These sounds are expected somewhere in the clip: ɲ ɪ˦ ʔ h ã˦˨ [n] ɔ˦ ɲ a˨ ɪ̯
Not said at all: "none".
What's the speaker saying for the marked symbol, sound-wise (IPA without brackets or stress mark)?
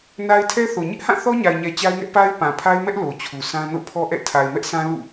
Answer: θ